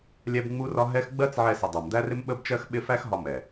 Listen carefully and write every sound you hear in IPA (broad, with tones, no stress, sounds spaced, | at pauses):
lʲ ɛ˦ b ŋ͡m u˦ r ɒ˦ ɦ ɛ˦ x ɡ͡b ɜ˦ t͡s ʕ ɛ˧ s ɪ˨ dˤ æ˨ m d̪ æ˦ r ɪ˦ m ɓ ə˦ b t͡ʃ ɜ˦ x ɓ ɪ˦ f æ˦ x ɦ ɒ˧ m ɛ˨